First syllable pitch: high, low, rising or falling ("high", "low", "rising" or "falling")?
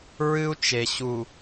high